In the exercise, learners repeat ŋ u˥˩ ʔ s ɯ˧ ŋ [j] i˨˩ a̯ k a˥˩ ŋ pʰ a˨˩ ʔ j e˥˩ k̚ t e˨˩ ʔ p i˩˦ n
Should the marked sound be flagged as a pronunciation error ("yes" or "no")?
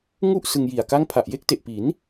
no